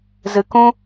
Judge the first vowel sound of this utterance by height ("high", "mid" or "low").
high